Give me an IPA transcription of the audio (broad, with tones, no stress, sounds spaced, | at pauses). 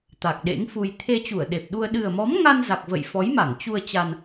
t̪ a˨˩ k̚ ɗ ḛ˧˥ ŋ f u˧ j t̪ʰ e˧ t͡ɕ u˧˩ ə̯ ɗ e˨˩ p̚ ɗ u˧ ə̯ ɗ ɨ˨˩ ə̯ m ɔ˨˦ m ŋ a˧ n z a˨˩ k̚ v ə̰˧˨ j f ɔ˨˦ j m a˧˩ ŋ t͡ɕ u˧ ə̯ t͡ɕ a˧ n